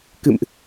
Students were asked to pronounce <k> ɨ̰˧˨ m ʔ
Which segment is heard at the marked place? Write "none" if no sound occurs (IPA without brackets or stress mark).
k